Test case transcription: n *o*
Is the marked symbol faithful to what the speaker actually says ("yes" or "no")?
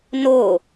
yes